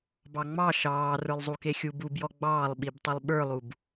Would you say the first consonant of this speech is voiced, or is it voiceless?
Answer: voiced